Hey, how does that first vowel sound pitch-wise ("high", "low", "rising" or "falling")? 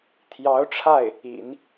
rising